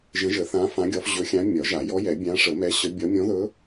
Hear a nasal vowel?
yes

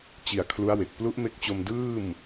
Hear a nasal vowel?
no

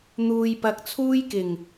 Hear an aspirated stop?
yes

